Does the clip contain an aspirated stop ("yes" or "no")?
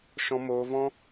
no